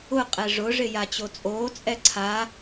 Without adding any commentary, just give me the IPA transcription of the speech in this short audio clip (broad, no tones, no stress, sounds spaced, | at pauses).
ʊ qʼ ɛ ʐ ʊ ʐ ɪ j a t͡ɕ o t͡sʼ oː t͡sʼ ɛ ǀʰ a